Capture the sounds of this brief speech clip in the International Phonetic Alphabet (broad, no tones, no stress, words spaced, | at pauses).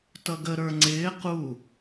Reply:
tʌɡə ɾə˞ŋ͡ǀɪː qu